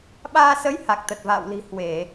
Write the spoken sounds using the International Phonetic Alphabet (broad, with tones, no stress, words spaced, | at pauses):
ɓaː˧sə˨˦j ha˨˩k̚t̪ə˨˩t̚va̰ː˧˨wli̤˨˩ hwe˧˩˨